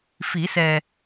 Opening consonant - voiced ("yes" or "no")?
no